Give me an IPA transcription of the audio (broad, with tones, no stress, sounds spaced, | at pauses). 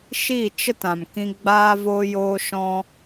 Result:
ʃ i˦˨ t͡ʃ ə˦ t ã˨ m k ĩ˧ ɡ͡b aː˧ v oː˧ j oː˧ ʃ ɔ̃˦